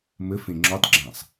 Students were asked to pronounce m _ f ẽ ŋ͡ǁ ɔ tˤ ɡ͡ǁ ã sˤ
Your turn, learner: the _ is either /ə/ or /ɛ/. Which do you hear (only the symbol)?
ə